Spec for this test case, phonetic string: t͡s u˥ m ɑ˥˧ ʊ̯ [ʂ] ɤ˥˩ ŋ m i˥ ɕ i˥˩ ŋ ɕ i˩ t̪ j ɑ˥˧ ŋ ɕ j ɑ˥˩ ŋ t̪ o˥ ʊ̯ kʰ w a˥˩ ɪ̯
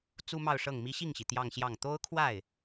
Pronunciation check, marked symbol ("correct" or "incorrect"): correct